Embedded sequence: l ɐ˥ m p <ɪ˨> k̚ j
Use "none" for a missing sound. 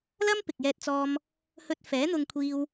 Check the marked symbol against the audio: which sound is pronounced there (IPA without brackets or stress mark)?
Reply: ɪ˨